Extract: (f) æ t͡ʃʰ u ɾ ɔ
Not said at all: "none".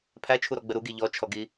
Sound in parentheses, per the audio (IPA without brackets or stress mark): pʰ